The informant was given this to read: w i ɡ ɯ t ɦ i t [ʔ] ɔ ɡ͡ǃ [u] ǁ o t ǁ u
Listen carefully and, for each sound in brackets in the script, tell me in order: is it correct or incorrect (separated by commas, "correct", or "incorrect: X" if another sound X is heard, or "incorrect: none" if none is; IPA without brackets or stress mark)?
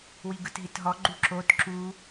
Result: incorrect: ɦ, correct